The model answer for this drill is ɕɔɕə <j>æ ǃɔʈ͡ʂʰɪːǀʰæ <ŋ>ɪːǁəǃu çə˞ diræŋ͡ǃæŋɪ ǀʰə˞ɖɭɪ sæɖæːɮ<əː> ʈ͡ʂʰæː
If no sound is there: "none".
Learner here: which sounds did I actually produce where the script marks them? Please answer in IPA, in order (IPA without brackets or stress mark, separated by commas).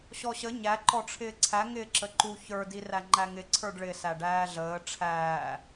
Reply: ɲ, ŋ, əː